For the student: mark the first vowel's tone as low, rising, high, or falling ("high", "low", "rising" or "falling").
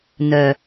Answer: low